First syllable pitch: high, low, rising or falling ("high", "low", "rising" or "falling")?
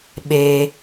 low